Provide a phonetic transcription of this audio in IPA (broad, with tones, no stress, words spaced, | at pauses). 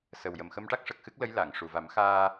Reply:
sə˨˩wjə˨˩m xə˧mʈa˦˥k̚ ʂə˨˩k̚xɨ˦˥k̚lə˧˥j la˨˩˨ŋ ʂu˨˩va˨˩˦mxaː˧